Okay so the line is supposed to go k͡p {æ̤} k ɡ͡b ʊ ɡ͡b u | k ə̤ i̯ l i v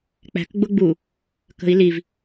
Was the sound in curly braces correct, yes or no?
yes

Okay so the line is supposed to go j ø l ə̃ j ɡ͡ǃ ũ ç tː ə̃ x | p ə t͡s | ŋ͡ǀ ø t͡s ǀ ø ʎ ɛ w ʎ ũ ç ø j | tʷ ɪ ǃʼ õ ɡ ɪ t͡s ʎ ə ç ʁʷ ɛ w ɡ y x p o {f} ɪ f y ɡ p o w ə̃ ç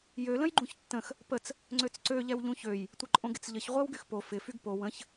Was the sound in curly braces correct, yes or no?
yes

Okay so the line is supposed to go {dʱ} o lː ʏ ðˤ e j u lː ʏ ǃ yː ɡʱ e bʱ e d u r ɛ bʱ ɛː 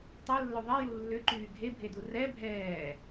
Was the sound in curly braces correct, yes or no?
no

